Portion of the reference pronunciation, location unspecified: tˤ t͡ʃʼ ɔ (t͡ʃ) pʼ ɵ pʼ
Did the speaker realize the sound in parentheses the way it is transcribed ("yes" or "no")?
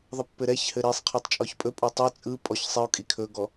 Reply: no